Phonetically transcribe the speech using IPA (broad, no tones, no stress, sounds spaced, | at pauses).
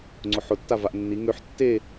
ŋ͡ǀ ʊ ħ ʊ tː a v a ʔ nː i ŋ ø ħ tː e